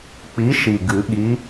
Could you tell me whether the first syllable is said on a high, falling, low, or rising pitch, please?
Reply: rising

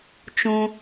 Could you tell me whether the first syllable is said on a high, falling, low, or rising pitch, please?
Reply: high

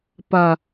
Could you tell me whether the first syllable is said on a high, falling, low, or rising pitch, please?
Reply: low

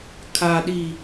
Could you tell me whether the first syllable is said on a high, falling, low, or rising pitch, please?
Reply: low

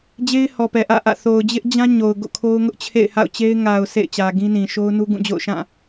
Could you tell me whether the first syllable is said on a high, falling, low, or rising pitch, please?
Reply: high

